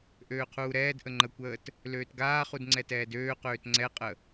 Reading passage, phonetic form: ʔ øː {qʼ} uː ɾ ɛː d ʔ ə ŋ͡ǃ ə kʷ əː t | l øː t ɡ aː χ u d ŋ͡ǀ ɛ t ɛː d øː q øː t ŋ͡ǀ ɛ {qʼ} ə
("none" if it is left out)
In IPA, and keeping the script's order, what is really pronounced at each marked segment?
qʰ, qʼ

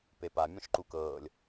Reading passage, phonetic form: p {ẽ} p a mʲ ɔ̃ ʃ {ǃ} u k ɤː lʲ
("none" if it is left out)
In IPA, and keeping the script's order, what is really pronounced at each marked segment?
e, ǃ

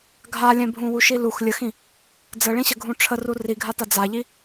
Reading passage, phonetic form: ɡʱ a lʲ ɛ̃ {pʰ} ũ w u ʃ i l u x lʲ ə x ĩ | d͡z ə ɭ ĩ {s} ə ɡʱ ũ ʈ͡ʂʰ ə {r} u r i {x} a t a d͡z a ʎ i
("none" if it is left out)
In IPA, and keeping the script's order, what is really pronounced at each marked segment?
bʱ, ɕ, r, ɡʱ

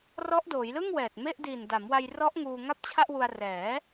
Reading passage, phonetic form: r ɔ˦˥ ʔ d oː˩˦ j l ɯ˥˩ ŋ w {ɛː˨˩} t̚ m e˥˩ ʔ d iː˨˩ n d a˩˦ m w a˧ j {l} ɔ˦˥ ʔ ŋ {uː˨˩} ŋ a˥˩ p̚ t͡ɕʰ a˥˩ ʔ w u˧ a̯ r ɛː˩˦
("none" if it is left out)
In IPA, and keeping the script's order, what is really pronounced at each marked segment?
ɛː˨˩, r, uː˧

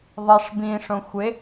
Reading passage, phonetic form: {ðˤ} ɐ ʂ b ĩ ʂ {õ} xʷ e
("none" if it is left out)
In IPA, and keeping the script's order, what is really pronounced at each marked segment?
ðˤ, õ

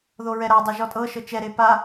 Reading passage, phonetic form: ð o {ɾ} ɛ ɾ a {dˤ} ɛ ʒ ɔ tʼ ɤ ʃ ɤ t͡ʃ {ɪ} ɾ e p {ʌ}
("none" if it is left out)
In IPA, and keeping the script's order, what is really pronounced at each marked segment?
ɹ, dˤ, ɛ, a

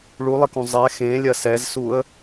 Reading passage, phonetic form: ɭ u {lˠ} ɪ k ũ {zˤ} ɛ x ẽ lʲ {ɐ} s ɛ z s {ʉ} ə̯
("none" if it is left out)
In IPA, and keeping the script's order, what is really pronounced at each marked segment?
lˠ, zˤ, ɐ, u

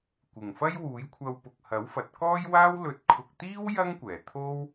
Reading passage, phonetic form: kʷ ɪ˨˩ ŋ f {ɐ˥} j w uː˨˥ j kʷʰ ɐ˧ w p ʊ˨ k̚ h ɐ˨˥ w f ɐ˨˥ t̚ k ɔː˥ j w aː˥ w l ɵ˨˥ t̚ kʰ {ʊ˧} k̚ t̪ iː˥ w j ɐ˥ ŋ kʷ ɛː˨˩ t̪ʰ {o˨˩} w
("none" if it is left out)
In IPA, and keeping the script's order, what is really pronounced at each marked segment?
ɐ˥, ʊ˨, o˥

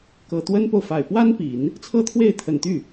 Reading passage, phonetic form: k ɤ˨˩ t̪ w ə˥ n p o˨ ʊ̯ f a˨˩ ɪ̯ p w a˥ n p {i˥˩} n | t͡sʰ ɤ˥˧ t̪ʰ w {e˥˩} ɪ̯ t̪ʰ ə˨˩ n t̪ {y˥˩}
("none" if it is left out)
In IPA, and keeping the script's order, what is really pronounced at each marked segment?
i˨˩˦, e˥˩, y˥˩

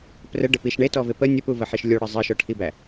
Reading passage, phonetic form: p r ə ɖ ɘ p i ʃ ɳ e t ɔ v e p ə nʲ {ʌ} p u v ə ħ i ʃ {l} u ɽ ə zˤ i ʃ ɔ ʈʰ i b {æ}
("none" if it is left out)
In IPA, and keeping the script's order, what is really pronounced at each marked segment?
ə, lʲ, æ

